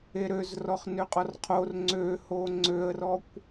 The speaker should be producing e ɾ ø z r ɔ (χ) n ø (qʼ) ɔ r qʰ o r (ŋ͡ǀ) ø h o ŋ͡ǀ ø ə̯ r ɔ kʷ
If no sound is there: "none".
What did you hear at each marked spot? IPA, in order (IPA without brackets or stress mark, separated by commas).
χ, qʼ, ŋ͡ǀ